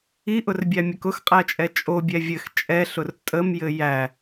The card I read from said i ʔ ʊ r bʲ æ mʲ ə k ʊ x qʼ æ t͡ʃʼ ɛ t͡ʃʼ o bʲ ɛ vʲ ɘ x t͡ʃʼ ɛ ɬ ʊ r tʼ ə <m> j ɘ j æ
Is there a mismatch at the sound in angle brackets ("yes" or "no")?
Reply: no